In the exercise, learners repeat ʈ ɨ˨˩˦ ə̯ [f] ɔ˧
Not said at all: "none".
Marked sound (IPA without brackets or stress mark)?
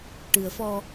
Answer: f